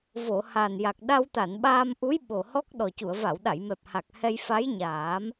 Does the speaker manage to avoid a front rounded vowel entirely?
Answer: yes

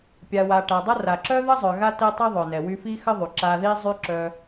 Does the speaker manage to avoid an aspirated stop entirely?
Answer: yes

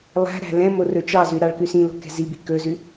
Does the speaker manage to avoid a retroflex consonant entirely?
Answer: no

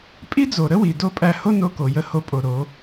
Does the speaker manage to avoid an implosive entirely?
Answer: yes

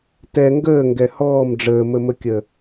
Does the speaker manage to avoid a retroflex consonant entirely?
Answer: no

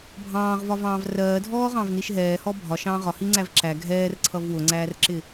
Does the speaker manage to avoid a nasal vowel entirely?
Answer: no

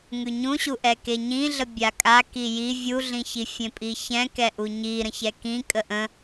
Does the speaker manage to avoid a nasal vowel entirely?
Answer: no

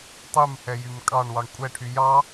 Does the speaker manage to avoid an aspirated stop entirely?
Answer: no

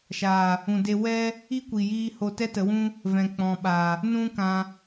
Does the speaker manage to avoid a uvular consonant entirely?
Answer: yes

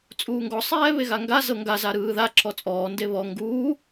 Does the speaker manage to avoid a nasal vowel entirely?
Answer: yes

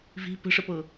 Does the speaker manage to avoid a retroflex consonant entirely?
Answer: no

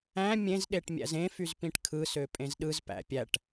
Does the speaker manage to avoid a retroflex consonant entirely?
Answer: no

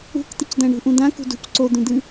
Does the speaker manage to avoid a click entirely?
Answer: no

